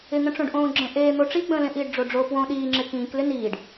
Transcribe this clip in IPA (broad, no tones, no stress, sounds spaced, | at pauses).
ɪ ŋ ə̃ ʈ͡ʂ õ ɖ ʔ õː ɡ͡ǁ ə̃ ʔ eː n̪ o ʈ͡ʂ i ɡ͡b ə̃ː l ẽ ʔ iː ɖ ɖ͡ʐ o ɖ͡ʐ o p w õ ɗ iː ŋ͡ǁ ɪ k ĩː k l ɪ n iː ɖ